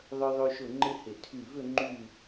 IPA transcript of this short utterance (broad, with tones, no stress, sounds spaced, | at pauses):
ðˤ œ˧ ðˤ ø˧ ʃ ʊ˧˩ ŋ͡ǃ ɪ˥ h ɪ˧˩ tʰ y˧˩ v ʏ˥˧ ŋ͡ǃ y˥˧